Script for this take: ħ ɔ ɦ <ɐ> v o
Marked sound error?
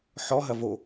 no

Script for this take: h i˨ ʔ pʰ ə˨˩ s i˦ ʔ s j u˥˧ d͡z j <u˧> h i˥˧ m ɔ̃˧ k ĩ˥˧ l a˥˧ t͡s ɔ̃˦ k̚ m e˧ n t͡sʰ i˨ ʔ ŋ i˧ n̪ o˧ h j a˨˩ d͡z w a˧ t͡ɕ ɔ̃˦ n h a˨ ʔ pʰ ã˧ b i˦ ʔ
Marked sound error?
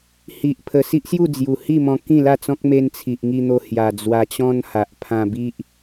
yes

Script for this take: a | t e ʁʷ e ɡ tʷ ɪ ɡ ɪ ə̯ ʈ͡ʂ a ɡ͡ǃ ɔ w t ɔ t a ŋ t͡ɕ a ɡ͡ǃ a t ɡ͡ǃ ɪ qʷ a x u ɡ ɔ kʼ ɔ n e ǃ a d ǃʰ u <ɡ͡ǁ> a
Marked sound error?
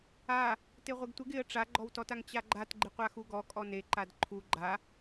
yes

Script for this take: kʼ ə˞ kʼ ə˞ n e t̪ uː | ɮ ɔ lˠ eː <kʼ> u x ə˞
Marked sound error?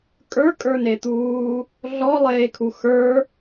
yes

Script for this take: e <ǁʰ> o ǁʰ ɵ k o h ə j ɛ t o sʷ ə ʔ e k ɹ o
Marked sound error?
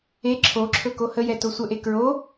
no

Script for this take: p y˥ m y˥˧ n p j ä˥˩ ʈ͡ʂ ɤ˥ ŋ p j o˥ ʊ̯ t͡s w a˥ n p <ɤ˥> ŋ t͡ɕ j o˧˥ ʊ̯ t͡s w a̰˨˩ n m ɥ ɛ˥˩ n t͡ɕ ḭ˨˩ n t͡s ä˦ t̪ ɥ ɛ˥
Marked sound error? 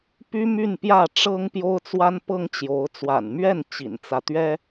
no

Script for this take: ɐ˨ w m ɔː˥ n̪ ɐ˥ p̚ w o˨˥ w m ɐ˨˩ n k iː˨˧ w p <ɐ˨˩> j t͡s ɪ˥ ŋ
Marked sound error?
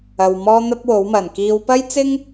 yes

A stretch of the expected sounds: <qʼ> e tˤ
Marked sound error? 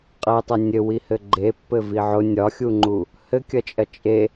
no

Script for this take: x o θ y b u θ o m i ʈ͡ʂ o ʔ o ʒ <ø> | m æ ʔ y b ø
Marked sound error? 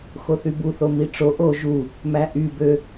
yes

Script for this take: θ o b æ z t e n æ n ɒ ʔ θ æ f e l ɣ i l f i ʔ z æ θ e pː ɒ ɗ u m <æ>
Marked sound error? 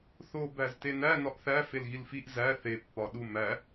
no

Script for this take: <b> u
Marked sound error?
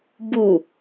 no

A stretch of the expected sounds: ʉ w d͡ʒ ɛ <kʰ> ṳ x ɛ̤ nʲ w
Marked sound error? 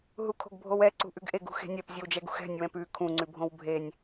yes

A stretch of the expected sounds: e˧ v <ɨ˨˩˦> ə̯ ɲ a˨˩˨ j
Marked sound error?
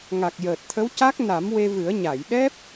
no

